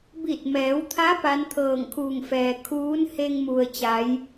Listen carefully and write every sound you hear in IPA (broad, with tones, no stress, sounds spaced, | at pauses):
b i˧˩ t̚ m ɛː˩˧ w t̪ʰ a˧˥ p a˧˥ n t̪ʰ ɤː˧˩ ŋ kʰ uː˧˩ ŋ f ɛː˩ kʰ uː˧˥ n h e˧ ŋ m u˩ ə̯ t͡ɕ a˩˧ j